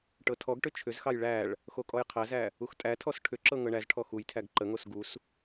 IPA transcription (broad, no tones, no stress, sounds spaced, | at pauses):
ʈ ɤ tʰ ɔ ɡ ʈ ʏ t͡ʃʰ ʏ z x ɑ j ɭ æ ɭ | x o kʼ ɔ j qʰ æ z æ | u x tʼ æ tʰ ɔ s ʈʰ ʏ ǁ ɤ ŋ ɤ ɳ æ z ʈʰ ɔ x u j tʰ æ ɡ ǃ ə ŋ o s ɡ u s